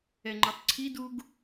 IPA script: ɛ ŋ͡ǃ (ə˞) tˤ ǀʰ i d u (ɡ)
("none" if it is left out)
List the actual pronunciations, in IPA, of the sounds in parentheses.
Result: ə˞, ɡ

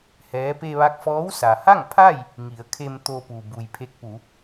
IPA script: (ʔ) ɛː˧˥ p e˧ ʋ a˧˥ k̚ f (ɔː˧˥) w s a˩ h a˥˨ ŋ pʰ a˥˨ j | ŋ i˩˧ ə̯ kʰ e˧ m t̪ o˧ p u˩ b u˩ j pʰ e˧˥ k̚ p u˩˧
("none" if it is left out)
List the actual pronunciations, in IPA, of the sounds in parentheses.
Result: h, ɔː˧˥

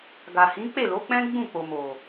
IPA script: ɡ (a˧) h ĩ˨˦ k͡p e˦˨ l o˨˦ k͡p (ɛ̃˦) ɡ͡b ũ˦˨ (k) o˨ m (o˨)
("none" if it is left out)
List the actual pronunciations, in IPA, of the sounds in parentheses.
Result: a˨, ɛ̃˦, k͡p, o˨

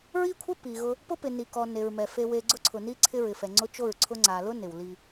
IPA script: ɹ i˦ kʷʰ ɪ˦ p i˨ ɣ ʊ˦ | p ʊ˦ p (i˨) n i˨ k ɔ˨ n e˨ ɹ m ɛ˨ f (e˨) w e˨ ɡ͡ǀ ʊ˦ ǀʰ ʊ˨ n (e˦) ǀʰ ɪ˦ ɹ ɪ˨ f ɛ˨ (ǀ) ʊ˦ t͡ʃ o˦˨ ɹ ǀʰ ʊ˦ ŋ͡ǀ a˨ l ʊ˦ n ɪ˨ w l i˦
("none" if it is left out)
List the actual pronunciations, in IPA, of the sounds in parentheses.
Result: ɪ˨, e˨, i˦, ŋ͡ǀ

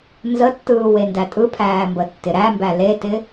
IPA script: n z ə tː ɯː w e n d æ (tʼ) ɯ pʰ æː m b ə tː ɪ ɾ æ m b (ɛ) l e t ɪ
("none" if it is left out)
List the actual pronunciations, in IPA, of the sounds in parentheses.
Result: tʼ, æ

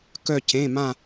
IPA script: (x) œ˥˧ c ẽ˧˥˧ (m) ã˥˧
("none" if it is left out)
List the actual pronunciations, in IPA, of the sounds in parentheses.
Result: k, m

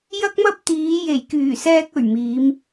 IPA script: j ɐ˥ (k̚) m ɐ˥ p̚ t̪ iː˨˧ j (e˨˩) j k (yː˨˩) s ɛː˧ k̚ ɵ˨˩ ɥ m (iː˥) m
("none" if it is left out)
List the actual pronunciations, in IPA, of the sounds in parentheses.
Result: k̚, e˨˩, yː˨˩, iː˨˧

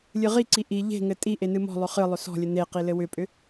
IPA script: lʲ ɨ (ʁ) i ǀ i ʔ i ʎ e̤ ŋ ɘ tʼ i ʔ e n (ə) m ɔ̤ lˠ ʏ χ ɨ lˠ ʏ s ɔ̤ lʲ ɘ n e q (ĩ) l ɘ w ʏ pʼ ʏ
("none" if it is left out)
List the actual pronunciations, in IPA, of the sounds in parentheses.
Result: ʁ, ɨ, i

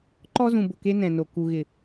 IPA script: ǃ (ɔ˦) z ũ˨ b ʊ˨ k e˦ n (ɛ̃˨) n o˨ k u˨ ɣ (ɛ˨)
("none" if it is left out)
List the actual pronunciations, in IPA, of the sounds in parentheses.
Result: ɔ˦, ɛ̃˨, ɪ˨

